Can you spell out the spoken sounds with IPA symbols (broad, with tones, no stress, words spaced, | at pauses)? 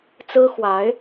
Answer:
t͡sɹ̩˥xwa˧˥ɪ̯